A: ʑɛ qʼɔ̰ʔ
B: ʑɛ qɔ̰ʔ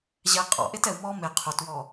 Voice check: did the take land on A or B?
A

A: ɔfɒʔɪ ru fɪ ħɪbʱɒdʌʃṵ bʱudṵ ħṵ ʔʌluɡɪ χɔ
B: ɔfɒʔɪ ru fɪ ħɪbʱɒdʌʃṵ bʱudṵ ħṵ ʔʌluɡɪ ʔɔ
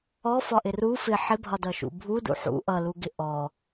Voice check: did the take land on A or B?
B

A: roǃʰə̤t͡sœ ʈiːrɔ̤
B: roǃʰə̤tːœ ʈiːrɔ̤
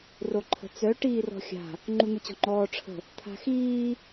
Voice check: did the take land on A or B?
A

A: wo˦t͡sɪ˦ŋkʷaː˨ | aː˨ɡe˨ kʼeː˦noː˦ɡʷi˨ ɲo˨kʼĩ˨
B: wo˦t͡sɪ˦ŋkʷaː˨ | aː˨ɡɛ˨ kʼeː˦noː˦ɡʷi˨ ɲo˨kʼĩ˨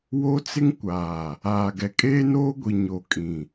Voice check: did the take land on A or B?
B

